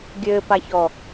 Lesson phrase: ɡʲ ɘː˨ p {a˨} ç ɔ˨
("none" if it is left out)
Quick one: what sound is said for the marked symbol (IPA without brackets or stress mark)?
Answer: a˨